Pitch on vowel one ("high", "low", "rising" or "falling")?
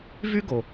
high